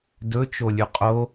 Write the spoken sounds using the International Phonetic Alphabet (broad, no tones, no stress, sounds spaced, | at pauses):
d ɵ t͡ʃ o lʲ ʉ qʼ o